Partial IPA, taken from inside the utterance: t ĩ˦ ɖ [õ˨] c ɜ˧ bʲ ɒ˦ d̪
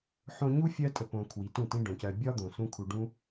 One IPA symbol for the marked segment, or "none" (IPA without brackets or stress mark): õ˨